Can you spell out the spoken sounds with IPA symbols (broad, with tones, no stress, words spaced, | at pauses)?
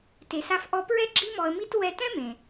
te˩sa˧fʔɔ˧pɹɛ˥ ɡ͡ǁi˥ mɔ˧ə̯mi˥t wɛ˧tɛ̃˥mẽ˩